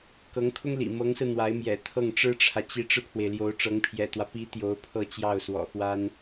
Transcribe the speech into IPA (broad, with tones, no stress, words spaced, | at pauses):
kɤ˧˥ŋkʰʊ˥ŋlḭ˨˩ mɤ˧˥ŋsɹ̩˧ n̪wa˧˥ɪ̯mjɛ̰˨˩ t̪ʰɤ˥˩ŋʈ͡ʂɻ̩˥ʈ͡ʂʰä˨ t͡ɕi˧˥ʈ͡ʂɻ̩˧pʰwe˩ɪ̯ ljo˧˥ʊ̯ʈ͡ʂɤ˧˥ŋpʰjɛ̰˨˩t̪wä˦ pi˧˥ t̪jo˧˥ʊ̯pʰɤ˥˧ t͡ɕjɑ˥˩ʊ̯swɔ̰˨˩xwa˥n